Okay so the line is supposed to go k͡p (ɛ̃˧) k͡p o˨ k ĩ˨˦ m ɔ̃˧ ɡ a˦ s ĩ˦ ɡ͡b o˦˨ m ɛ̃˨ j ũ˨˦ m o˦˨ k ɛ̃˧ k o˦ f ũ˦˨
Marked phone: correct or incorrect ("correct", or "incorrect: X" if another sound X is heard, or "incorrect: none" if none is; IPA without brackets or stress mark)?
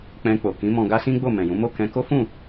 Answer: correct